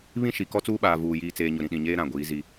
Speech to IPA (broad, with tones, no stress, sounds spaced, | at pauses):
β ĩ˦ ʃ i˨ k ɔ˦ t͡s uː˦ ɓ aː˨ v uː˨ j iː˨ t͡s eː˨ ɲ ʊ˨ ɾ ĩ˨ ɗ ĩ˨ ɲ eː˦ ɾ ã˨ ɡʷ iː˨˦ z i˦